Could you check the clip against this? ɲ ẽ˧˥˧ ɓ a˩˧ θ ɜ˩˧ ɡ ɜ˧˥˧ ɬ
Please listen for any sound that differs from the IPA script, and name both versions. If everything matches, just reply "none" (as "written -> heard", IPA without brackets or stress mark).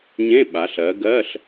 θ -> ɬ